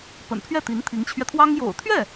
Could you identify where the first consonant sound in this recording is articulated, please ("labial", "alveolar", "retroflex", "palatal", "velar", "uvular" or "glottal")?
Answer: labial